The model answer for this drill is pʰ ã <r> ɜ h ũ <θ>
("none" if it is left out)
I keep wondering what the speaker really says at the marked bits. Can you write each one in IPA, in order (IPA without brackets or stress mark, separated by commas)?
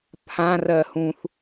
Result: r, θ